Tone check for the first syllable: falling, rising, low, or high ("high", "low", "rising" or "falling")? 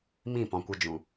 falling